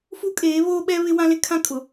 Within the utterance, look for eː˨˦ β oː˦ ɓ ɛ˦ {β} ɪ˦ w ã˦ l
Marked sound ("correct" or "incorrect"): correct